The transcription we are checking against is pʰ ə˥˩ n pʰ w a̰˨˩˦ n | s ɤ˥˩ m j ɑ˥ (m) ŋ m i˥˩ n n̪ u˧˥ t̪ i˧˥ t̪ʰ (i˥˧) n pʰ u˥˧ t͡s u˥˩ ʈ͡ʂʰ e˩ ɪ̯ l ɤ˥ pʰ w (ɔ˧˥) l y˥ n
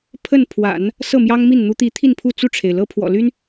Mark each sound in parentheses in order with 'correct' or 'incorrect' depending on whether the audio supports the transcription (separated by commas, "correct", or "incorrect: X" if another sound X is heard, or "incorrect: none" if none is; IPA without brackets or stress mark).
incorrect: none, correct, incorrect: ɔ̰˨˩